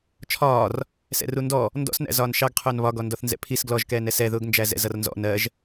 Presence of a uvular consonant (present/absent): present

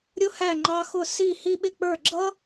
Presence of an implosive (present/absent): present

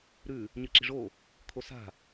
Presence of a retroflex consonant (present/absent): present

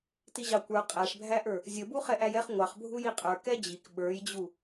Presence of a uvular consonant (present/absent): present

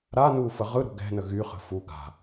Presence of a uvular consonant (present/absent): present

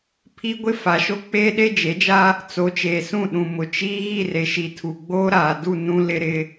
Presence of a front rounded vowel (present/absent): absent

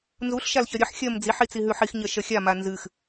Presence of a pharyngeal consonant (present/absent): present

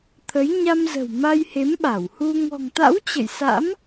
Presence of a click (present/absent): absent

